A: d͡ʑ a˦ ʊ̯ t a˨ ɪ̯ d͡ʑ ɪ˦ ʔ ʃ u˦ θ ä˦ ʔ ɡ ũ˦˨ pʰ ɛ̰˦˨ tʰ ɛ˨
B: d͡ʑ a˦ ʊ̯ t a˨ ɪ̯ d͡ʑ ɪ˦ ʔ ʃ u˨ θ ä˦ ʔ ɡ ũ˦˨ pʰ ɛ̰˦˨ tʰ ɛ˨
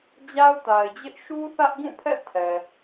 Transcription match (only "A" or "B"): A